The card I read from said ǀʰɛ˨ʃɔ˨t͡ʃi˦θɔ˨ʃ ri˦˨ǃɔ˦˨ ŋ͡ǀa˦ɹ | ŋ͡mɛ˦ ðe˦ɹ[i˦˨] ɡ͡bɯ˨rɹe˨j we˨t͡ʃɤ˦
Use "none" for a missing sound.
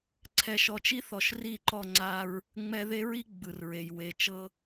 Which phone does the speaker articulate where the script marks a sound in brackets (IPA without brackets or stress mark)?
i˦